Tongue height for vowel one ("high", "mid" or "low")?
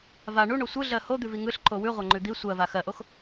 low